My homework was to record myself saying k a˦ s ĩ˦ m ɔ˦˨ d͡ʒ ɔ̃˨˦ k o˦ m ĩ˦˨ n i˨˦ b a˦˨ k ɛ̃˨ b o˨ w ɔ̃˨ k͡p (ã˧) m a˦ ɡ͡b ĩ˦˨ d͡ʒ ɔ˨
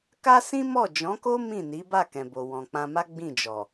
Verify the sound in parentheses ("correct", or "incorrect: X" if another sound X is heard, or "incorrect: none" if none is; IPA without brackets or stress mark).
correct